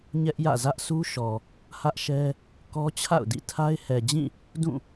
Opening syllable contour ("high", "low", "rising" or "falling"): high